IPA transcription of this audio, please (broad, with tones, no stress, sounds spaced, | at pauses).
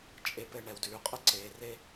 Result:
t͡ʃʼ e˧ p ɘ˧ ɳ ɛ˨ w d ʉː˨ qʼ ə˦ ǀ eː˨ r e˦